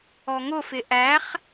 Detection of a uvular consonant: present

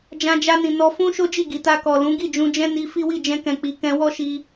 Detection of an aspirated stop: absent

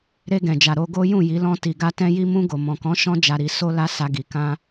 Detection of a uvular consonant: absent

